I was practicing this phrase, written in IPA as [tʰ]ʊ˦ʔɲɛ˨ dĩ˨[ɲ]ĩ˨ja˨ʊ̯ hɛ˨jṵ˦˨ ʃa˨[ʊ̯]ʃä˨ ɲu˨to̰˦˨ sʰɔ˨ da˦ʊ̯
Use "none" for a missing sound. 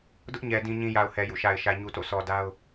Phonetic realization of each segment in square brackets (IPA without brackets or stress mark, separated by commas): d, ɲ, ɪ̯